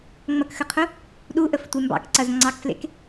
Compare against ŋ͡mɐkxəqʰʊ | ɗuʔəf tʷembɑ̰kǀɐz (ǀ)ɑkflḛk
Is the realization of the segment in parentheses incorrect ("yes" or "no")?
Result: yes